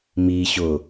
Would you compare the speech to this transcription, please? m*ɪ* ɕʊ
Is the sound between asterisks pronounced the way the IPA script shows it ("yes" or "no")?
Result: no